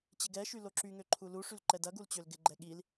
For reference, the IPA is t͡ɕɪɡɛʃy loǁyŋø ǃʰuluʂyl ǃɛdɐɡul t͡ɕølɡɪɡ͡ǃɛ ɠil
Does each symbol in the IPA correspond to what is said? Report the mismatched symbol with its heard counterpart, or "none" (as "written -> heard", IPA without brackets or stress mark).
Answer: none